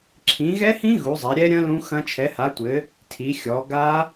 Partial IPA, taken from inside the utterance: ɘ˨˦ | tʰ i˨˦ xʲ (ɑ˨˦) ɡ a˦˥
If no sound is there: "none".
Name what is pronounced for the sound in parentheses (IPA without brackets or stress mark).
ɔ˨˦